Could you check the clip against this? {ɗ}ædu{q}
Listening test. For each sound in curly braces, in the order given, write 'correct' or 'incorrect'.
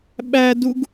incorrect: ɓ, incorrect: ɡ

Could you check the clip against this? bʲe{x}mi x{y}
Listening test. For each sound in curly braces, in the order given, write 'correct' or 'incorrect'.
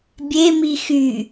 incorrect: none, correct

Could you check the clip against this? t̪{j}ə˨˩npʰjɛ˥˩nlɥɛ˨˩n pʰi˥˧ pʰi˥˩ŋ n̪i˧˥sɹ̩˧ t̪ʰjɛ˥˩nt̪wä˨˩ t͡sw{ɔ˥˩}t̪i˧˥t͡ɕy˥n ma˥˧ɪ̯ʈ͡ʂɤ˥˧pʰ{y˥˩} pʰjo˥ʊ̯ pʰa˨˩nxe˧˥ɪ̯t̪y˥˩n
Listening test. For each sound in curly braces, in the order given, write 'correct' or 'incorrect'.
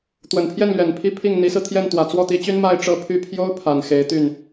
incorrect: w, correct, correct

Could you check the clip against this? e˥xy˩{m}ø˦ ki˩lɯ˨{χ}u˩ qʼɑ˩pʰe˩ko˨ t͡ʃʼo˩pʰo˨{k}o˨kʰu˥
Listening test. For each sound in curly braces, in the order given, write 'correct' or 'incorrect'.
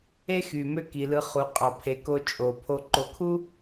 correct, correct, incorrect: ǃ

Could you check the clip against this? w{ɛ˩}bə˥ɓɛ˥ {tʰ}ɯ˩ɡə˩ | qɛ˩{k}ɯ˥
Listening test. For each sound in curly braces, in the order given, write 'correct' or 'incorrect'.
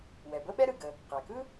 correct, incorrect: ɾ, correct

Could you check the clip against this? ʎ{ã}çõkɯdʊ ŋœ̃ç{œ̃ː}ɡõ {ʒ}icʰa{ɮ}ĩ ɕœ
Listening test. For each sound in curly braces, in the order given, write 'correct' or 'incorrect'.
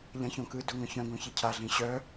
correct, incorrect: œ̃, incorrect: ç, correct

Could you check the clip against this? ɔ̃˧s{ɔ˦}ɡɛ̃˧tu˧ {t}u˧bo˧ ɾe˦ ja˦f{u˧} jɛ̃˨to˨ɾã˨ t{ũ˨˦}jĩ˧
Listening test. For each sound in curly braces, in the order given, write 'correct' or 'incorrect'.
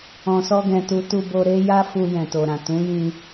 correct, correct, correct, correct

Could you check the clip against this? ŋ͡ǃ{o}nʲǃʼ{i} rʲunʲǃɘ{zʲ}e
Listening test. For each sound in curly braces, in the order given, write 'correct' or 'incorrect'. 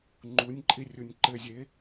incorrect: u, correct, correct

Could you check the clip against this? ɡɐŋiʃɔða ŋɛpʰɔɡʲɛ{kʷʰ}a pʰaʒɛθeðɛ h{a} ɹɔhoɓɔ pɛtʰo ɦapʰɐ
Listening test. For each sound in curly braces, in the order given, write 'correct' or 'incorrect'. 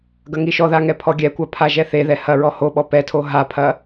incorrect: kʷ, incorrect: ɐ

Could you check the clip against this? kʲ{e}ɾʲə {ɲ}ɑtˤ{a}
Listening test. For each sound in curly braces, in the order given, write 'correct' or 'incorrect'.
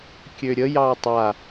incorrect: ø, incorrect: j, correct

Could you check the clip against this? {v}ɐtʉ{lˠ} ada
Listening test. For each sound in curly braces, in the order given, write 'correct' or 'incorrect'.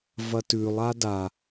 correct, correct

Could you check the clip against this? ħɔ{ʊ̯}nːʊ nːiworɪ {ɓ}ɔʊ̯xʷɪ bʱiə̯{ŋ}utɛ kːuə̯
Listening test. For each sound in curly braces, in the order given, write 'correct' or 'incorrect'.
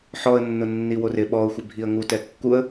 incorrect: ə̯, correct, correct

